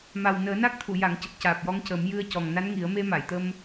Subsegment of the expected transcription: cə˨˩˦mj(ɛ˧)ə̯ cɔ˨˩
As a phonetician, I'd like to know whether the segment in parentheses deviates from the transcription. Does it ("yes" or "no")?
yes